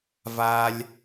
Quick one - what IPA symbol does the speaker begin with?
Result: v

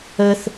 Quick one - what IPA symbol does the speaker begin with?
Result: ə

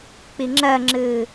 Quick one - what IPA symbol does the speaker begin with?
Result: k͡p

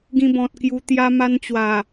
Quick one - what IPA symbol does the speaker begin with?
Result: ɡ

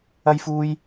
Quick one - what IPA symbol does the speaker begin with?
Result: ɐ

